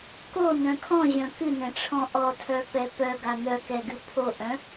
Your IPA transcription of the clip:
k o n œ̃ kʰ ɔ̃ ʑ œ̃ k ɨ n ɛ̃ ʈ͡ʂʰ ɔ̃ ʔ ɔ tʰ œ p ɛ p œ ɡ a n œ k ɛ ɡ ɨ pʰ o ʔ œ̃

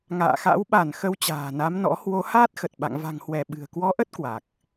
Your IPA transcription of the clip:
ŋ a̰ː˧˨ x a̰˧˥ w ɓ a˧˩ n x ə˧ w t͡ɕ a̤ː˨˩ n a˨˦ m n ɔ̰˧˥ h w o˨˦ h aː˦˥ t̚ x ə˨˩ t̚ ɓ a̰˧˨ ŋ v a̤˨˩ ŋ h w ɛ˧˩ ɓ ɨ̤˨˩ ə̯ k w ɔ˨˦ ʔ ə˦˥ t̚ k w a˨˩ k̚

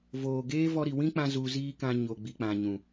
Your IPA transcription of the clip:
v oː˨ ɡ eː˦ v ɔ˧ ɾ i˨ w ĩ˦ k͡p ã˧ z u˧ z iː˦ k ã˧ ɲ o˨ ɡ͡b i˨ k͡p ã˨ ɲ ũ˨

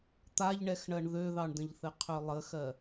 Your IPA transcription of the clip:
t̪ a ʎ ɳ ɛ x ɳ ɜ ɳ ð ø ð ɑ ɳ d ə̃ ʎ θ ɘ qʰ ø lˠ ə x ɜ

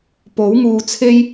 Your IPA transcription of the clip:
p o˨˥ w ŋ uː˧ t͡sʰ e˥ j

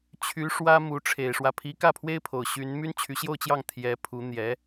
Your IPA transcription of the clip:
t͡ɕʰ y˧˥ ʂ w ä˥ m u˧˥ ʈ͡ʂʰ e˨˩ ɪ̯ ʂ w ä˦ pʰ i˧˥ k ä˥˩ pʰ w e˥ ɪ̯ pʰ o˨˩ ʊ̯ ɕ y˧˥ n m y˥ n t͡ɕʰ y˧˥ ɕ j o˥˧ ʊ̯ t͡ɕ j ɑ˥˩ ŋ t̪ʰ j ɛ˧˥ pʰ u˧˥ n̪ j ɛ˧˥

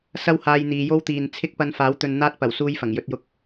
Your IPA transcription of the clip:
s ɐ˥ w h aː˧ j n̪ iː˨˧ j o˥ w t̪ iː˨ n t͡sʰ ɪ˥ k̚ p ɐ˧ n f aː˨˥ w t̪ ɵ˧ n n̪ aː˥ t̚ p ɐ˨˩ w s uː˥ j f ɐ˨˩ ŋ j ɵ˧ t̚ j ʊ˧ k̚

